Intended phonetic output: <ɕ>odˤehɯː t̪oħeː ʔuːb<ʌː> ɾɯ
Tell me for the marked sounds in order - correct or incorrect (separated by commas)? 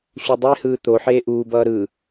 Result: correct, correct